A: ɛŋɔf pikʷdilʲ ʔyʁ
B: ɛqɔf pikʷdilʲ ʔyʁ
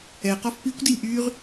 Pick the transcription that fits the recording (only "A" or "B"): B